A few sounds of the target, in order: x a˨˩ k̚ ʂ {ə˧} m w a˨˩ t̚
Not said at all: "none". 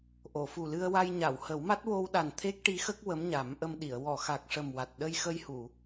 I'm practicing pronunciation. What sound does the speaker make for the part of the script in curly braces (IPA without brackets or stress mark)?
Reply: ə˨˩